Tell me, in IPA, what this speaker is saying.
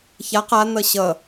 ç a q a n̪ ʌ ɕ ʌ

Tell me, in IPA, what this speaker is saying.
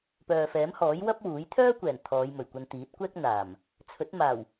p œː˨ f ɛː˨˥ m h ɔː˨˥ j w ɐ˥ p̚ w uː˨˥ j t̪ʰ œː˥ kʷ ɛː˨˩ n t̪ʰ ɔː˨˧ j m ɵ˨˩ ɥ kʷ ɐ˧ n t̪ iː˨˥ t̚ kʷ ɛː˥ k̚ n̪ aː˨˩ m | t͡sʰ ɵ˨˥ t̚ m aː˨˩ w

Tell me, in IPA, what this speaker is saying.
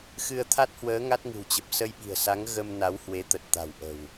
x ɨ˧ ə̯ t̪ʰ a˦˥ t̚ h w əː˨˦ ŋ a˦˥ t̚ ŋ ɨ̤˨˩ w t͡ɕ ə˨˩ p̚ s ə˧ j ɓ i̤˨˩ ə̯ s a˨˦ ŋ ɣ ə˧ m n a˨˦ w h w e˨˦ t̪ ə˨˩ t̚ t̪ a̤˨˩ w ʔ ə̤˨˩ w

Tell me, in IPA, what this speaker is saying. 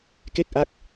k e˥˩ k̚ ʔ a˦˥ k̚

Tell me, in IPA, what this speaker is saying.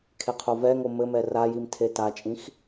kʰ e qʰ o v ɛ ŋ o m ɘ m ɛ r a j i m tʰ e t a t͡ʃʼ ĩ x

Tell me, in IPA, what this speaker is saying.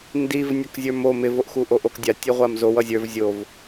n d i v nʲ ʌ k zʲ ə˞ m o m ɪ v o ʔ x u ʔ o ʔ o k dʲ a tʲ i ʁʷ a m z o w ʌ zʲ ə˞ v zʲ o v

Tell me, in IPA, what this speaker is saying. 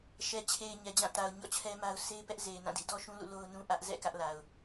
ʃ ɛ˨ t͡ɕʰ e˨ ɪ̯ ɲ ɛ˨ d͡ʑ ã˦˨ t a˨ ʊ̯ ɲ ɔ̰˦˨ t͡ɕʰ ɛ˦ m a˦ ʊ̯ s e˦ ɪ̯ p ɛ˦ ʔ z e˨ ɪ̯ n ã˦˨ d ḭ˦˨ d ɔ˦ ʃ ũ˦ l ṵ˦˨ l o˦ ʊ̯ n ũ˦ ʔ ä˦ ʔ z ɛ̰˦˨ k ä˦ ʔ l a˨ ʊ̯

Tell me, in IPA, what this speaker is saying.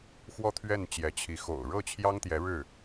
x w ɔ˥ t̪ʰ ɥ ɛ˥˩ n t͡ɕ j ɛ˧˥ t͡ɕʰ i˧˥ x o̰˨˩ ʊ̯ ɻ ɤ˥˩ t͡ɕʰ j ɑ˥ ŋ t̪ j ɛ˧˥ ɻ ɻ̩˥˩

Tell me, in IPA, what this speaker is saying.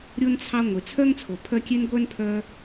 ɾʲ o˥ n t͡sʰ ɑ˦ ŋʷ e˩ t͡sʰ œ˥ ŋ t͡sʰ o˩ pʰ œ˦ kʲ e˥ n ɡʷ œ˥ n pʰ œ˦

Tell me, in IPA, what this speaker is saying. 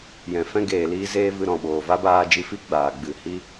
j ɛ̃˨ f ɛ̃˦ ɡ eː˨ l iː˧ z eː˧ v ɨ˧ ɾ ɔ̃˨ ɓ oː˨ v a˦ b aː˧ d͡ʒ i˧ f i˦ ɡ͡b aː˨ ɡ͡b ɨ˨ h i˦

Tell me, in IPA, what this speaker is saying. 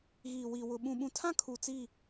ɣ iː˨ w i˨ w ʊ˨ ɓ ũ˨ ɓ ũ˨ tʰ ã˦ kʰ u˨ t͡s i˦˨

